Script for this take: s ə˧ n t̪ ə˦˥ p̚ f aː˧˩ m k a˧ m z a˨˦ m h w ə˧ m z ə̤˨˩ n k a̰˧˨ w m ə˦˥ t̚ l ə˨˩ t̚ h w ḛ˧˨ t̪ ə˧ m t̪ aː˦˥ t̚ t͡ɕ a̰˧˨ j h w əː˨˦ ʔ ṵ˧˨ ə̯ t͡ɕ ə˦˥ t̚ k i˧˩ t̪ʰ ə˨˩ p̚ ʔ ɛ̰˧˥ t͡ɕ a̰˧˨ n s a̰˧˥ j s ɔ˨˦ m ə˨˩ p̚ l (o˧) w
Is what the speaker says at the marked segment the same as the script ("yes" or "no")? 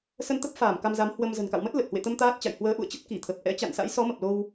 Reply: yes